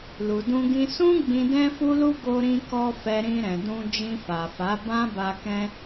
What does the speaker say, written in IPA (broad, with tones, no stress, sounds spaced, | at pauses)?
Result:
l u˨ d ũ˧ ɡ ĩ˧ s ũ˦ ɡ͡b ĩ˧ d ɛ̃˦ f u˦ l u˦ ɡ o˧ ɾ ĩ˧ k ɔ˧ f ɛ˧ ɾ ĩ˧ ɾ ɛ̃˨ d ũ˧ d͡ʒ ĩ˧ f a˨ f a˨˦ b ã˦ b a˧ k ɛ̃˦